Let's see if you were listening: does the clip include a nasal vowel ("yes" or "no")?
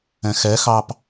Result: yes